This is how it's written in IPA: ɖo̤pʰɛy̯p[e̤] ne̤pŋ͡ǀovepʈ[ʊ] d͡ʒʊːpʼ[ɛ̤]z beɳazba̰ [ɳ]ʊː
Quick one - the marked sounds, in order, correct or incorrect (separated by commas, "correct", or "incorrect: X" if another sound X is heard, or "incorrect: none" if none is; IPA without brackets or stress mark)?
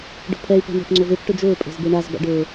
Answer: correct, correct, incorrect: e̤, incorrect: ɖ